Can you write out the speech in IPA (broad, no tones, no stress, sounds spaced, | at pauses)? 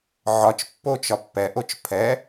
ʕ ɒ t͡ʃ pː o t͡ʃ ɒ pː ɛ ʔ o t͡ʃ pʰ ɛ